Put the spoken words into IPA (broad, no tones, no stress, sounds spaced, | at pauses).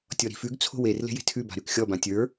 tʲ ɔ ɾ i̤ f ʉ ɡ t͡sʰ o̤ w e r l e̤ j e̤ tʰ ʉ b a̤ ɾ ʉ k xʲ ɔ b ã tʲ ə˞